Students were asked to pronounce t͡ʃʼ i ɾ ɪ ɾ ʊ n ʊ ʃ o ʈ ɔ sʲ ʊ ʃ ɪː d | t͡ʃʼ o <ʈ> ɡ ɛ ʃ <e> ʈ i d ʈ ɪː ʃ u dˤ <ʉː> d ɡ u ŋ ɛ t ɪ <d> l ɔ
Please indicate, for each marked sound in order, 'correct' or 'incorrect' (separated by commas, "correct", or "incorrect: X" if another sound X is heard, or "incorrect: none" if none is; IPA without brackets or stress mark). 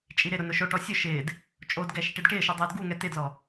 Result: incorrect: d, incorrect: i, incorrect: ʊː, correct